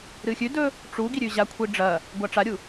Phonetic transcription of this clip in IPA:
ɾ ɨ xʲ ʉ d ɵ | ʈ͡ʂ u ɡ i ɾʲ ʉ ʑ a kʷʰ i ɖ͡ʐ ɐ | ɡʷ a ʈ͡ʂ a ɾʲ u

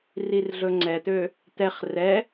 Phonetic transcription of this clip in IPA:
r i r ɮ ɵ ŋ͡ǀ ɛ t̪ ø | t̪ ɛ χ r ɛ

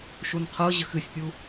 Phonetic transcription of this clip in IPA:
ʃ u n qʰ ɤ ʑ ə x ɨ sʲ pʲ u

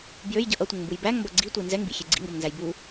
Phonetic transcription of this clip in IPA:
b j ø j ɟ ʌ ʔ ʌ tʷ ə ŋ m b u j b æ ŋ m b ʌ ɡ͡ǀ i tʷ i n z ɛ ŋ b ḭ xʲ e ɡ͡ǀ ḭ ŋ ɡ ʌ m n z æ j b u

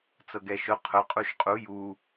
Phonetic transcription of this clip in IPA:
t͡s ɤ ɡ ɛ ʃ ʊ qʰ ʊ qʼ u ʃ qʼ u j u

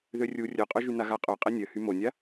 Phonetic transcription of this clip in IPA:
ð ø rʲ u rʲ œ qʼ œ ʒ y n a ɣ a qʼ œ qʼ e nʲ œ h y m o nʲ a

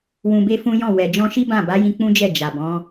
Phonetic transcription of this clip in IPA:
w ũ˧ b e˦ f ũ˦ j ɔ̃˦˨ w ɛ˨ d͡ʒ ɔ̃˧ ʃ i˦ b ã˦˨ b a˨˦ j ĩ˧ k͡p ũ˦ d͡ʒ ɛ˦˨ d͡ʒ a˨ b ɔ̃˨˦

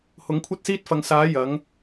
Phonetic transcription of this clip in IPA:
h ʊ˨˥ ŋ kʷʰ ɐ˥ t̚ s iː˥ t̚ f ɐ˨˧ ŋ s aː˨˥ j ɐ˨˥ ŋ

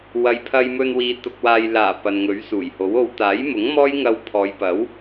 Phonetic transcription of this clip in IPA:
w ɐ˨ j pʰ ɐ˧ j m ɵ˧ n w iː˨˧ t̪ ʊ˧ k̚ w aː˧ j l aː˨˩ p ɐ˨ n ŋ ɵ˨˥ ɥ s uː˨˩ j h o˨˥ w o˨ w t̪ aː˨˥ j m ʊ˨˥ ŋ m ɔː˥ j ŋ ɐ˧ w pʰ ɔː˨˧ j p ɐ˨˥ w

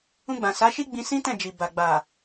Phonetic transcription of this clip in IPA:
ũ˧ ɡ͡b ã˨ s a˨˦ ʃ i˦ ɡ͡b ĩ˧ s ĩ˦ t ɛ̃˦˨ d͡ʒ i˨ b a˨ ɡ͡b a˨

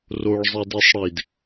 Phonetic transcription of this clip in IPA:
r o ɭ zˤ i d i sˤ ɽ i d

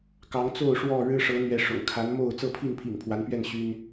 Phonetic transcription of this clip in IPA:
k ɑ˨˦ ŋ t͡s o˥˨ ʊ̯ ʂ w ɔ˥˨ ɻ ɻ̩˦ ʂ ɤ˨˦ n̪ ɥ ɛ˨˦ ʂ ʊ̰˨˩ ŋ kʰ a˨˦ n m o˥˨ ʊ̯ t͡s ɤ˥˨ pʰ i˥˨ n pʰ ḭ˨˩ ŋ pʰ w a˨˦ n p ɥ ɛ˥˨ n ɕ y˦ n

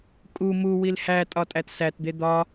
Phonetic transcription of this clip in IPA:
kʼ u m u w i l h æ tʼ ɒ tʼ æ t s æ t d̪ e d̪ ɒ

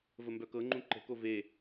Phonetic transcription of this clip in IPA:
v ə m b œ k ɤ ŋ͡ǃ ũ ǃ ə̤ k o v e

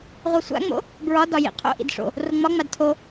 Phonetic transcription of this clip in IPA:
ʁʷ a sʷ a̰ ŋ͡m o̰ | b ɹ ɒ d ɒ j ḭ qʰ o̰ ʔ ḭ d ʂ o̰ | r o ŋ͡m ɒ ŋ͡m a d tʰ o

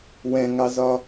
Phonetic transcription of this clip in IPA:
w ɛ̃ ŋ ɑ z ɒ

